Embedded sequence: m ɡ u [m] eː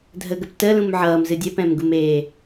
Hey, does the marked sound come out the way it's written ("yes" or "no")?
yes